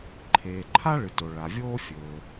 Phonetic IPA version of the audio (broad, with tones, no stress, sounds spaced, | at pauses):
ǃʰ eː˩ ǃʰ a˥ ɭ ɨ˩ t o˩ ɭ a˩ vʲ oː˥ fʲ ɵː˩